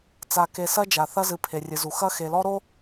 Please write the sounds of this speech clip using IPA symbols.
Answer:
t͡s a˨ k e˨ s ɐ˦ d͡ʒ a˨ θ ɐ˦ z ɨ˨ pʰ e˨ rʲ ɨ˨ z u˨ x ɐ˦ x e˨ l ɔ˦ ɾ o˦

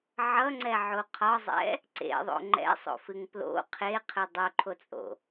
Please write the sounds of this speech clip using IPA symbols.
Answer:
ʕ ʌ ŋ͡ǀ ɛ ʕ o qʰ ɒ zˤ ɛ̰ | ǀ ḛ ðˤ o̰ ŋ͡ǃ ɛ̰ sˤ o̰ f ɨ ŋ p l o̰ qʰ e qʰ ɨ dˤ o ǃʰ o t͡sʼ o̰

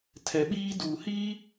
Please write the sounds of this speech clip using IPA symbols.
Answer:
tʰ ɛ˨ ɓ iː˦ d uː˨ h i˦

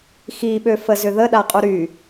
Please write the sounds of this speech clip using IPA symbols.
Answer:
x i ɓ ø f ə z ʏ ð ə ɗ a qʼ u ɾ y

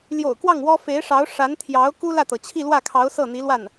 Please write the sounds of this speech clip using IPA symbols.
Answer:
l j o̰˨˩ ʊ̯ k w ɑ˥˩ ŋ w ɔ˥ f e˧˥ ɪ̯ ʂ ɑ˧˥ ʊ̯ ʂ a˧˥ n t̪ʰ j ɑ˧˥ ʊ̯ k u˥ l ä˥˩ t̪ ɤ˩ t͡ɕʰ i˥˧ l w ä˥˩ kʰ ɑ˧˥ ʊ̯ s ɤ˥˩ n̪ i˧˥ l w a˥˩ n

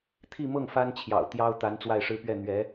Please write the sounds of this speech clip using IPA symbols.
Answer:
t̪ʰ i˥˧ m ɤ˥˩ ŋ f a˥ n t͡ɕʰ j ɑ̰˨˩ ʊ̯ t̪ j ɑ˥ ʊ̯ t̪ a˧˥ n t͡s w a˥˩ ɪ̯ ʂ ɻ̩˥ p ɥ ɛ˥˩ n̪ ɥ ɛ˧˥

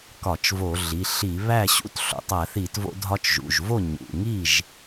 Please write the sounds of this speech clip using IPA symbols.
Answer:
k ɒ˧˩˧ t͡ʃ v o˧˩˧ ɮ i˩˧˩ ɬ i˧˩˧ β æ˥˩ ɕ ṵ˥˩ t ɬ o̰˩˧˩ tˤ æ˧˩˧ θ i˧˩˧ t v o̰˧ dʱ ɒ˧ t͡ʃ ʒ ṵ˩˧˩ ʒ v o˥˩ ɲ ṵ˩˧˩ ŋ i˥˩ ʒ

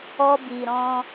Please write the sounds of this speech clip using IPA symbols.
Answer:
ɔ˧ b i˨ ɾ ɔ̃˧

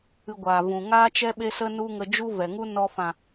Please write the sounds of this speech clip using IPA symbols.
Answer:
ɨ˧ ɡʷ aː˨ v ũ˨ ŋ aː˦ t͡ʃ ɛ˦ ɓ e˦ s ə˦ n u˦ ŋ ə˧ d͡ʒ u˦ v ɛ˨ ŋ u˦ n ɔ˧ f ã˨

